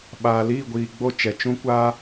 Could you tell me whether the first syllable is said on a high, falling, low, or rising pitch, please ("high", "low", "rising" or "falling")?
low